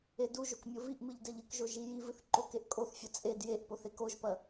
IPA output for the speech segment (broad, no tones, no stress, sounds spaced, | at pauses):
e d u ʒ o k mʲ o v i ʔ m ɨ ʎ d ɛ ʎ ɨ k ʒ o ʒ i j i v ɨ θ ǃ o k e ʔ kʼ o θ fʲ ɐ t͡sʼ e d j e ʔ p o θ e k o ʒ p ɐ